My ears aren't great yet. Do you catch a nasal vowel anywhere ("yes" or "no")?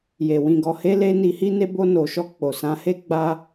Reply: yes